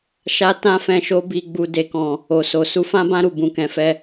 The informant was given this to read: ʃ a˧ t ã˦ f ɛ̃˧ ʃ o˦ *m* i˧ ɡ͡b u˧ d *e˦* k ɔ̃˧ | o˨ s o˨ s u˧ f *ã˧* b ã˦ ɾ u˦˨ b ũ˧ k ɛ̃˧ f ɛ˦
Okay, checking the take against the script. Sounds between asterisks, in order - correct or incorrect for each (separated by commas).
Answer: incorrect, correct, incorrect